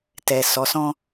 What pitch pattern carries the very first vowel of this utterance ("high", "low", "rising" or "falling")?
low